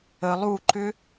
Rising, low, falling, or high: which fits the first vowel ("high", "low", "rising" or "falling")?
low